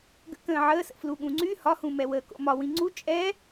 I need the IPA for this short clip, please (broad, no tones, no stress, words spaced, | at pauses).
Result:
ɡə̰kə̃ː ʕəːsə̰ fluɠũŋ͡ǀy hɒhũmɛwəː ko̰mɒ wĩŋ͡ǀu t͡ʃʼɛ